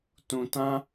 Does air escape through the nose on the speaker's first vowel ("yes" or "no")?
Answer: yes